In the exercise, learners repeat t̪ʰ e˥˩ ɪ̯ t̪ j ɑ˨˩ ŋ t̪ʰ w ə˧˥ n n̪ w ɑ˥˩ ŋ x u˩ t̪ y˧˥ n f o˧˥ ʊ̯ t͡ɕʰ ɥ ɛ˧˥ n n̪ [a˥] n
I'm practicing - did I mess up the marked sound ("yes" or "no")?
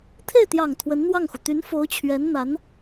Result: yes